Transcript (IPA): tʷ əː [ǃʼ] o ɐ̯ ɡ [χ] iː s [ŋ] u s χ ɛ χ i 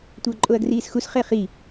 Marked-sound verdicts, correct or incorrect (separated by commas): correct, incorrect, incorrect